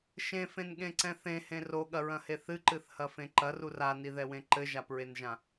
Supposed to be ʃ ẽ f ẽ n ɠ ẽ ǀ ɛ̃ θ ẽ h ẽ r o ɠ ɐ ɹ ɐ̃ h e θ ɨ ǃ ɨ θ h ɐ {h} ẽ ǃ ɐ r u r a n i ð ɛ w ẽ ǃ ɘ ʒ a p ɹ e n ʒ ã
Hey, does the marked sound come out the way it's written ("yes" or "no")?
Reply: no